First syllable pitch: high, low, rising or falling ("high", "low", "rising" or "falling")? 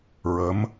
rising